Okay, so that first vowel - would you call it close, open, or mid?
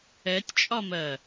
mid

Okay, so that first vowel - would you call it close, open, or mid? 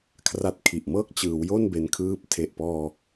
open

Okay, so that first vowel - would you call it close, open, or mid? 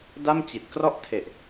open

